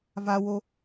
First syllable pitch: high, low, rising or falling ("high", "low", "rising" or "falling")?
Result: high